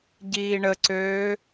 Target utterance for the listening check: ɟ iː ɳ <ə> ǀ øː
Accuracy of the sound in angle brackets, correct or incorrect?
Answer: correct